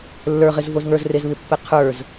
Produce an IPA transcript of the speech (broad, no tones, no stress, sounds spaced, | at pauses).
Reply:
lː ə˞ ʁ ɪ z v o z ŋ ə˞ z r e z β ɪ pː ɛ qʰ ə˞ z